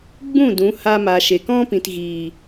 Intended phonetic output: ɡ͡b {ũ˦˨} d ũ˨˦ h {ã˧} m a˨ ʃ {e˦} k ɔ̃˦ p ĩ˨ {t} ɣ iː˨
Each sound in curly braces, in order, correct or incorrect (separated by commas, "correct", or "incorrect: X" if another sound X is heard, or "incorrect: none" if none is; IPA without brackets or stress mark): correct, incorrect: a˧, incorrect: e˨, correct